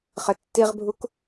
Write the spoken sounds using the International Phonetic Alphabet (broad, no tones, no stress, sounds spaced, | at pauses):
χ ɘ tː i ʁ bʱ u k